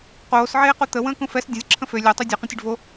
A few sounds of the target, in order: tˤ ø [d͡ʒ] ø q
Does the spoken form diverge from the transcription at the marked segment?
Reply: yes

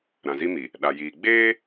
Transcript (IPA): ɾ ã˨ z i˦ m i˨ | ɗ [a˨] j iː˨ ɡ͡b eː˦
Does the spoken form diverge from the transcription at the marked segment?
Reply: no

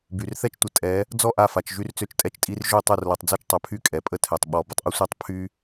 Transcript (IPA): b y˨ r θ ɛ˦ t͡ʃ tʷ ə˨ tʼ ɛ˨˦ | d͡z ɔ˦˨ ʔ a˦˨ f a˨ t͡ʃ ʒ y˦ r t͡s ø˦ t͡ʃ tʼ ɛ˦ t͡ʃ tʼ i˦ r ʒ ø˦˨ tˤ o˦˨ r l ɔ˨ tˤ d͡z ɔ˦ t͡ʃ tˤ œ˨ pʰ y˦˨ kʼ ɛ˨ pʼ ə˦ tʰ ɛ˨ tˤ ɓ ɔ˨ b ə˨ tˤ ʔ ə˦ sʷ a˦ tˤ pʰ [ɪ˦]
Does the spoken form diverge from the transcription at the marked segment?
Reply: yes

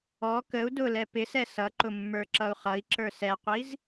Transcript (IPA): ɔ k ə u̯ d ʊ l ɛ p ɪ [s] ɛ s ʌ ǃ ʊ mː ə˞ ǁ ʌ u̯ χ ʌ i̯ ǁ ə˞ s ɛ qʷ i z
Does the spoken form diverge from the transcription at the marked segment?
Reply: no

